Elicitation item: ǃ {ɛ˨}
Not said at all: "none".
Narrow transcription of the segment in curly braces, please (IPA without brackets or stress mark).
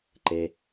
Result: e˨